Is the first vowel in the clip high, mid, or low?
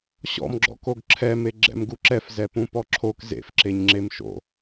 mid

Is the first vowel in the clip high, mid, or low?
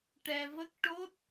mid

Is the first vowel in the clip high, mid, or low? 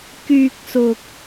high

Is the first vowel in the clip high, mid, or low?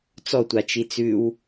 mid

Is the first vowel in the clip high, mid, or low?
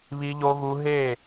high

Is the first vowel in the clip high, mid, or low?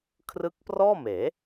high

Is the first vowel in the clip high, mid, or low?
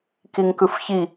high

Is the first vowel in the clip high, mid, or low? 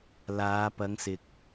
low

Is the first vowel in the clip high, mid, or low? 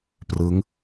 high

